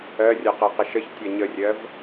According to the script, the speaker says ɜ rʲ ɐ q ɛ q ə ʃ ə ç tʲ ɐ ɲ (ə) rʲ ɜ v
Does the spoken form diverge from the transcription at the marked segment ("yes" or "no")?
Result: no